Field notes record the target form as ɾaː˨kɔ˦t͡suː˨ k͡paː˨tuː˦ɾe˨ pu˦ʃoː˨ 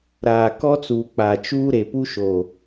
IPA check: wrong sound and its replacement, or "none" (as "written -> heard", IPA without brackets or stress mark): t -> t͡ʃ